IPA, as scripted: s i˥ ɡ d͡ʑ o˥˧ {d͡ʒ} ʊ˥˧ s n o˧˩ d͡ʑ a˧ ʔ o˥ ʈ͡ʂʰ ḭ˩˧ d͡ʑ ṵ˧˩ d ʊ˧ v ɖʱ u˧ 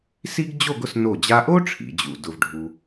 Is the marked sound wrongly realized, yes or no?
yes